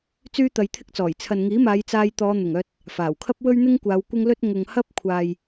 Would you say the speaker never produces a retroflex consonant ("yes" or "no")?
yes